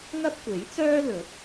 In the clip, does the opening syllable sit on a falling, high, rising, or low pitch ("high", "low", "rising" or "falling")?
high